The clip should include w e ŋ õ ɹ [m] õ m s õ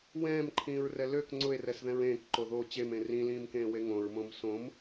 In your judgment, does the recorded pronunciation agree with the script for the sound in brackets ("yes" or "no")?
yes